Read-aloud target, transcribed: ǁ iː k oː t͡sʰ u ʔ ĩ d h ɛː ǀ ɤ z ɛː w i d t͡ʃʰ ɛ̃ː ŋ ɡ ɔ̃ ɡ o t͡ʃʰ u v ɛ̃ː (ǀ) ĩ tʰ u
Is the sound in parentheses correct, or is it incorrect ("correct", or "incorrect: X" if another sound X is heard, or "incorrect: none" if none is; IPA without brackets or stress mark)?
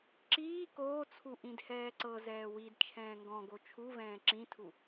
incorrect: ǁ